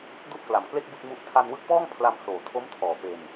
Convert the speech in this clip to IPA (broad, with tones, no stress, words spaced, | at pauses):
du˥˩ʔkla˨˩mkle˥˩k̚ bɯ˥˩k̚mu˦˥ʔ tʰa˧nwɯ˦˥k̚pɔː˥˩ŋ pʰla˧msoː˨˩tʰo˦˥mtʰɔː˨˩ pe˧n